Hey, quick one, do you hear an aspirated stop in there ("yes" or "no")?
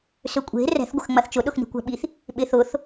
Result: no